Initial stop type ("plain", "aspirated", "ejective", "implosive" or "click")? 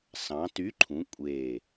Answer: plain